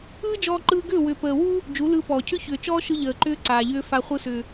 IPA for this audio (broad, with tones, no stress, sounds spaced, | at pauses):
ɯː˦ d͡ʒ ɔː˧ ǃ ɯː˧ ɡ ʏː˦˨ w ʏ˨ p əː˨ w u˦ | d͡ʒ u˨˦ l ɯː˧ p ɔː˨ cʰ ʏ˦ ç ʏː˨ t͡ʃ ɔː˦ ʃ ɯ˧ ʎ əː˨ ǃ ʏː˦ ǀ aː˨ ʎ ʏː˦ f a˧ χʷ ɯ˧ s ʏː˨